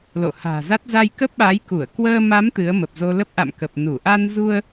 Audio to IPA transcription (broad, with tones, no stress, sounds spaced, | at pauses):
l o̰˧˨ h a̤ː˨˩ z a˦˥ t̚ z a˧ j k ə˦˥ p̚ ɓ aː˨˦ j k u˧˩ ə̯ k w əː˧ m a˨˦ m t̪ ɨ˨˦ ə̯ m ə˨˩ p̚ z o˧ l ə˦˥ p̚ ʔ a̰˧˨ m k ə˨˩ p̚ n u˧˩ ʔ a˧ n z u˧ ə̯